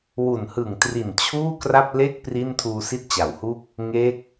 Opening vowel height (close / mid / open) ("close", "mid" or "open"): close